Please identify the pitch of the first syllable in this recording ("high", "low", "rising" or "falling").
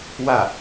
falling